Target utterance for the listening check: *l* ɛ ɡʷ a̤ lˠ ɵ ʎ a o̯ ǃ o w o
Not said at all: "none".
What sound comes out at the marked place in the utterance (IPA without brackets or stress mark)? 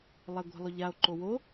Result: lˠ